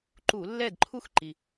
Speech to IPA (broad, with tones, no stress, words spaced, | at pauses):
ǃu˧˩˧lːɛ˥˨dǃʰu˥xǃi˩